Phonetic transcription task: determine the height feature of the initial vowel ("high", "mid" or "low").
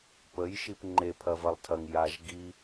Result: mid